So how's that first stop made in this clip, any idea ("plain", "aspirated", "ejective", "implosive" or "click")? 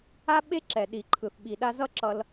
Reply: implosive